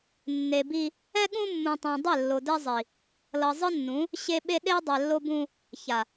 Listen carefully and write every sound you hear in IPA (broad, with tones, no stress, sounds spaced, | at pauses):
nː e˨ b i˦ | ɛ˦ ɠ ũ˦ mː ũ˨ tˤ õ˨ dˤ e˦˨ lː o˨ d ɛ˦ zˤ i˨ | l ʌ˨ zˤ ɯ˦ nː ũ˨˦ | ɕ e˦ ɓ e˦ ɗ e˦ dˤ ɛ˨ lː o˦ b ũ˦ | ç a˨